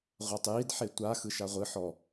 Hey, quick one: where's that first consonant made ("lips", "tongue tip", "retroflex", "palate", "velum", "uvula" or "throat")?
uvula